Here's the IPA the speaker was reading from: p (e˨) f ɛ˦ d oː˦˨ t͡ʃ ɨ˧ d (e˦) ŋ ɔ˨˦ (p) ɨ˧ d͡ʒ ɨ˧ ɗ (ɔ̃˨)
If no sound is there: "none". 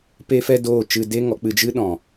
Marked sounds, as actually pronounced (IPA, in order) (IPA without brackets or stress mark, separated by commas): e˦, e˦, k͡p, ɔ̃˨